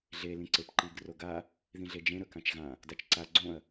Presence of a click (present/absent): present